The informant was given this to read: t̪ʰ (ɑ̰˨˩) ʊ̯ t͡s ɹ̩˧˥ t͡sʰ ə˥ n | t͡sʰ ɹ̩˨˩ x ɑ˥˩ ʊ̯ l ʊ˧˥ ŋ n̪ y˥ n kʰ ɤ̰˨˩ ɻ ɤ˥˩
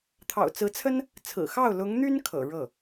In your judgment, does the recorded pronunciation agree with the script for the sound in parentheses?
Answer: yes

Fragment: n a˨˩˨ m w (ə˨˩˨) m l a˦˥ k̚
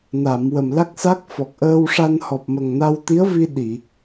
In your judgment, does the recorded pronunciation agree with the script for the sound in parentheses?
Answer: no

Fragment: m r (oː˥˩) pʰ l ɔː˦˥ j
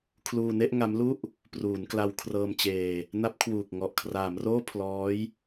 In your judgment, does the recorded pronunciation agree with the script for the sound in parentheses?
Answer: yes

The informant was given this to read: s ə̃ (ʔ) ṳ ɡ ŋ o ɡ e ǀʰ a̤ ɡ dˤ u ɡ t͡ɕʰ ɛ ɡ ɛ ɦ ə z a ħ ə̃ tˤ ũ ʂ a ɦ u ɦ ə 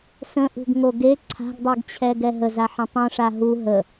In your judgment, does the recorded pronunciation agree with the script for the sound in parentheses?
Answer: yes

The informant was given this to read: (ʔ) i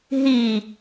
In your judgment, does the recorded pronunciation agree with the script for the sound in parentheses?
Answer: no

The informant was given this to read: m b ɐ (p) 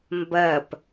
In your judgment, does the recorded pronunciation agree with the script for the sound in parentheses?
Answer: yes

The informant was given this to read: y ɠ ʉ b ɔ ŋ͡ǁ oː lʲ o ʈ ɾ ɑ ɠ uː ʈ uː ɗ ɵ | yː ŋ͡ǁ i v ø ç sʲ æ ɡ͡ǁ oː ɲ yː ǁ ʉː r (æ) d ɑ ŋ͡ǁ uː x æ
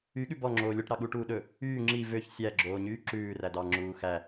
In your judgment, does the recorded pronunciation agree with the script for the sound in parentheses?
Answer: yes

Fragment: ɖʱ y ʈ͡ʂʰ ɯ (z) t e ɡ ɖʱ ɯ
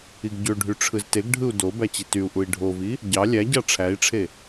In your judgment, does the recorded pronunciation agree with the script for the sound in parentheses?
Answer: yes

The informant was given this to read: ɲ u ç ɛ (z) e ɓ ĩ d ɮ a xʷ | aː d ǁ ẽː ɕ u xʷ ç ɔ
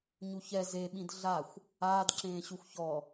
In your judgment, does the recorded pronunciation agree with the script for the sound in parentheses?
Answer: yes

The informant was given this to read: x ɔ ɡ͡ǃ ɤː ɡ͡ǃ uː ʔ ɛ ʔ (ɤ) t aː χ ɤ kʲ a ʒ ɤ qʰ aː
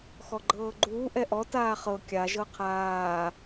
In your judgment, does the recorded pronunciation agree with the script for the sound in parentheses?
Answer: no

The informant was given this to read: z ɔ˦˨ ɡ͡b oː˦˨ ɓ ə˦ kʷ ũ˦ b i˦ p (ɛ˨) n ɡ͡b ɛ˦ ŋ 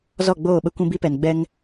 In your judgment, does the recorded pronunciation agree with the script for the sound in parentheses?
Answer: yes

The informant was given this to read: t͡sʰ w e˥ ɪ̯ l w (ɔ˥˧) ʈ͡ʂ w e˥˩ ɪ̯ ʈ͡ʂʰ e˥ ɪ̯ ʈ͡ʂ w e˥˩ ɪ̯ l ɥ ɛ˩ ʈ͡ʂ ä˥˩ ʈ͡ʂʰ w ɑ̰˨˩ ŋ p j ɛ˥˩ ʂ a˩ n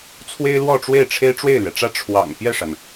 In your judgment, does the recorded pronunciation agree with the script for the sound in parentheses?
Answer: yes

